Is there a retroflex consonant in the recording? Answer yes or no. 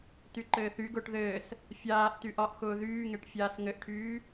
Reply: yes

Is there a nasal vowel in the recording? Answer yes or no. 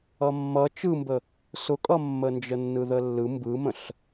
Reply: yes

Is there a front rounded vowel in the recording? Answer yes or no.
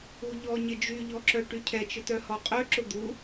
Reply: yes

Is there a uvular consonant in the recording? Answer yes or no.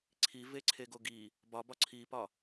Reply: no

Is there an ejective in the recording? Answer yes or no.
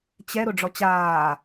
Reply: no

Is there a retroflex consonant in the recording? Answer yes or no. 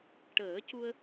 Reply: yes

